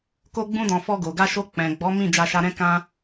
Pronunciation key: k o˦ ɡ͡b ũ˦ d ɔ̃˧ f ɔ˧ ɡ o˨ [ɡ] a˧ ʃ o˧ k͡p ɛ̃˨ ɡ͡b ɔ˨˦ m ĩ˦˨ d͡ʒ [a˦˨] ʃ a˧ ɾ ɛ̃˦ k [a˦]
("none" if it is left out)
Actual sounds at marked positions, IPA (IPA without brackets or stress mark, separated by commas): ɡ, a˧, ã˦